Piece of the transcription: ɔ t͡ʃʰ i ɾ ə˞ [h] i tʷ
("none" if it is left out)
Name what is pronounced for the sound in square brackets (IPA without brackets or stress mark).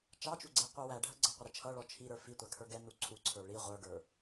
f